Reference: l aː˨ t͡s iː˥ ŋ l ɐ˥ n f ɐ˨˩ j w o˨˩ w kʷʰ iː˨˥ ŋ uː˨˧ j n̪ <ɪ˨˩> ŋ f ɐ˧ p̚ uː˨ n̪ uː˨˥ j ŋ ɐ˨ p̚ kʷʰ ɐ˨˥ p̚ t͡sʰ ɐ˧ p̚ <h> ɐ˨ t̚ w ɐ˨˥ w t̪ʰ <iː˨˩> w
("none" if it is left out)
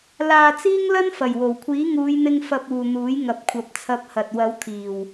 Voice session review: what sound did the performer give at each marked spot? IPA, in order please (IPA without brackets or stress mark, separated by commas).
ɪ˧, h, iː˨˩